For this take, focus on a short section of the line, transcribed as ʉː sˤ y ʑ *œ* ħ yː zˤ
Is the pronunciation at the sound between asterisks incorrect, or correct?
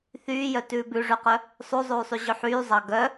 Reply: incorrect